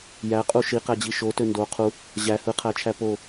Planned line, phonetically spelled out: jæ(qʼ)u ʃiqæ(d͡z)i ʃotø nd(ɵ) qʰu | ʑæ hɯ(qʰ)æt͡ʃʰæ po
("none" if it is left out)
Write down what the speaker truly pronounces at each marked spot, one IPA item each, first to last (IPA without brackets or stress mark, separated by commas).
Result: qʼ, d͡ʑ, o, qʰ